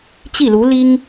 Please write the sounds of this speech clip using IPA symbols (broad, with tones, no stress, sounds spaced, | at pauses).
t͡ɕ i˥˩ l u˧˥ l i˥ ŋ